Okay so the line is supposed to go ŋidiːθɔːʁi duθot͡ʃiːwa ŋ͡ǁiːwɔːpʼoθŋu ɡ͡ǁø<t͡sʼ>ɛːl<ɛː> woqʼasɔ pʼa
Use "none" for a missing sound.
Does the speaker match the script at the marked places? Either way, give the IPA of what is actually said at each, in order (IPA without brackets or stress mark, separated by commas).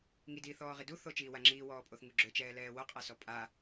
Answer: t͡ʃ, ɛː